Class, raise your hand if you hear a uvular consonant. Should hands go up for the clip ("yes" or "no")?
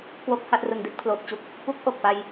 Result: no